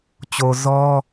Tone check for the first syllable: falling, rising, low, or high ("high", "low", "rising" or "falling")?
low